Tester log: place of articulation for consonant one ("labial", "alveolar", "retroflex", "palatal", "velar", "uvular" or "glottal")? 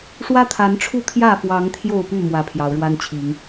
retroflex